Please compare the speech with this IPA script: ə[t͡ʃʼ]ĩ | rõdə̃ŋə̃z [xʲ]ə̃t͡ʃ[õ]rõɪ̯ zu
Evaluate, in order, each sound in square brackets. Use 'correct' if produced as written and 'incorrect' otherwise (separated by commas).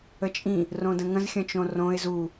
correct, correct, correct